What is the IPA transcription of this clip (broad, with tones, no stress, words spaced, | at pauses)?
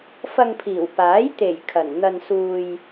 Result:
fɐ˧ŋpʰiː˨˩wpaː˨˥j t̪e˨˩j kʰɐ˨˩nn̪ɐ˧n suː˧j